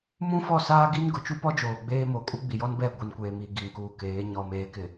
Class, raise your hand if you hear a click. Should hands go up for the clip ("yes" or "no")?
no